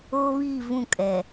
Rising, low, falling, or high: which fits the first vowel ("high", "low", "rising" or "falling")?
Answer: high